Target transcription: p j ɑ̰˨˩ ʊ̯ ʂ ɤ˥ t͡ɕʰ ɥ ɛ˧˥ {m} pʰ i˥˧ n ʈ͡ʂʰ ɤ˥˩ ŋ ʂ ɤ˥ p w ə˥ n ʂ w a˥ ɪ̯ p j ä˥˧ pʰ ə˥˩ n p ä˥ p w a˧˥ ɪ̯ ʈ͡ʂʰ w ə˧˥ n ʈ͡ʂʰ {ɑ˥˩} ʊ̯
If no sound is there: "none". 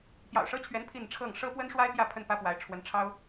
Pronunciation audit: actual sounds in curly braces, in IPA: n, ɑ˥

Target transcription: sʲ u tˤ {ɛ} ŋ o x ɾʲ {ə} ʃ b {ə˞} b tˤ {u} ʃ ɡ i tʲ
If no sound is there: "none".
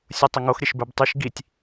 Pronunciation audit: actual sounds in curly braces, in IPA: ə, ə, ə˞, y

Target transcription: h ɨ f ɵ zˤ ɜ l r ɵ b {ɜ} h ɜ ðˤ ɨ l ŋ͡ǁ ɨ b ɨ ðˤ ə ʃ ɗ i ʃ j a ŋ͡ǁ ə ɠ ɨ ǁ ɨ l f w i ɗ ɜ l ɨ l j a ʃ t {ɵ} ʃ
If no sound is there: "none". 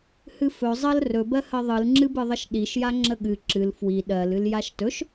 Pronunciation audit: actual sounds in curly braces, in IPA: ɜ, ɵ

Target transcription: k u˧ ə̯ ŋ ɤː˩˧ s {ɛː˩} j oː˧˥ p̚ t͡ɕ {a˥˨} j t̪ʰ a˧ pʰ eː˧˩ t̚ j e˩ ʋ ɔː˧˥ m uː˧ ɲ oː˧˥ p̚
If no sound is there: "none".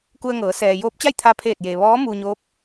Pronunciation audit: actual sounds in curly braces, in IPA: ɛː˩, a˥˨

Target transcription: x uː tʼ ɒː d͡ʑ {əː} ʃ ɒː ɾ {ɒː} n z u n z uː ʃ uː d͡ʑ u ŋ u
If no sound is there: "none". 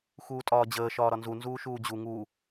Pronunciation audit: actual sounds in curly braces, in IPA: əː, ɒ

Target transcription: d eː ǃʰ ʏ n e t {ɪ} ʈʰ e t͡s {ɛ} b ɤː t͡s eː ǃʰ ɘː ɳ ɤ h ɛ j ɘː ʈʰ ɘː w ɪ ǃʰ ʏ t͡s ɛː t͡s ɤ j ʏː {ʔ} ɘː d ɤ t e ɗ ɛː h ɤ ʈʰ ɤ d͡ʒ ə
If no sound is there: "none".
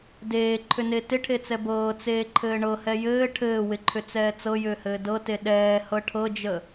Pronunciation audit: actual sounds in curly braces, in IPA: ɪ, ɛ, h

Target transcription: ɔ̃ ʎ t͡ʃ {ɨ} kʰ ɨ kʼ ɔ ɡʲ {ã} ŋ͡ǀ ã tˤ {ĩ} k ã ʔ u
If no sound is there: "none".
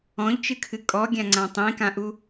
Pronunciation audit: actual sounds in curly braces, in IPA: ɨ, ã, ĩ

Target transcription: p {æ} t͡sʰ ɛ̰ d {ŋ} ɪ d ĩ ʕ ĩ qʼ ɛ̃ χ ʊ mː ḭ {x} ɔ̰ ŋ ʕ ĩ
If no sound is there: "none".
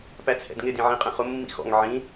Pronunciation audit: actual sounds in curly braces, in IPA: æ, ŋ, x

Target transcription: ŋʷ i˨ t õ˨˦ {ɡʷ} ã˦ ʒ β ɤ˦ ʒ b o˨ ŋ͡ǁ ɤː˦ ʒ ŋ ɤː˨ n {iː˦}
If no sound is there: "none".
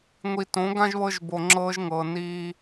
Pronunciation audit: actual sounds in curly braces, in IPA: ɡ, iː˦

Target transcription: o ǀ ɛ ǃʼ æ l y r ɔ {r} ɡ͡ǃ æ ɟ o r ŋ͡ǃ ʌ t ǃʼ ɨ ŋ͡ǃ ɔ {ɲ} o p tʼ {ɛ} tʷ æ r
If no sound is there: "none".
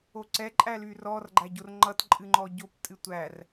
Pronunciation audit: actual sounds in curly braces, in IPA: r, ɟ, ɨ

